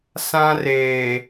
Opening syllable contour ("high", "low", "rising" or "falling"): high